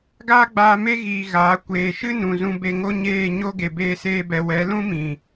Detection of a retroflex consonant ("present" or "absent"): absent